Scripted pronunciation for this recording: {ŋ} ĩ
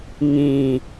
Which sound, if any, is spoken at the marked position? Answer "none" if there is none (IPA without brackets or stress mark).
ŋ